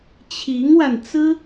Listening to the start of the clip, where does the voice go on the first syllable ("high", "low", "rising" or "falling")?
rising